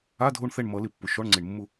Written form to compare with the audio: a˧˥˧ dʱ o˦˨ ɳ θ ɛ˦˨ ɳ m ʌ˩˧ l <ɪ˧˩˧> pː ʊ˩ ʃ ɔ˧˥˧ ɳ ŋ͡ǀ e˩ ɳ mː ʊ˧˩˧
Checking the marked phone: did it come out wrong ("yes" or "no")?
no